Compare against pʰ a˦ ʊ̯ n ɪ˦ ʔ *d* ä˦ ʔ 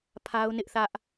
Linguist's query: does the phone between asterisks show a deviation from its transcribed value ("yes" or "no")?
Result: yes